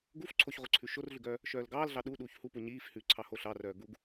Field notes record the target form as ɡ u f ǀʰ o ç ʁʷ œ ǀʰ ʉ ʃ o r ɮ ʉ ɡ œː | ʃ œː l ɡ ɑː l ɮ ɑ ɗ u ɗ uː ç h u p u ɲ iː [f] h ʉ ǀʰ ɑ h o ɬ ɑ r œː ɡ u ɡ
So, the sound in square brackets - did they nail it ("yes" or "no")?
yes